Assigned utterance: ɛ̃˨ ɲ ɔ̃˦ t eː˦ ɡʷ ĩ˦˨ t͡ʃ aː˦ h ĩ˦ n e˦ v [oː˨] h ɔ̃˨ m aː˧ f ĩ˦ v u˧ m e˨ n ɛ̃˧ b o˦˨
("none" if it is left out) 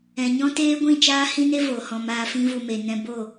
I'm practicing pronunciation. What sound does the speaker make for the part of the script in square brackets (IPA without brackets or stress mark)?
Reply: oː˨